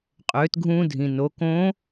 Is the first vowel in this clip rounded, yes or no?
yes